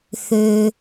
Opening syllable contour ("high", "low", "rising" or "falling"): low